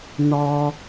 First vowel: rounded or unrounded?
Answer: rounded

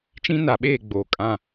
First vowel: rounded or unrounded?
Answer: unrounded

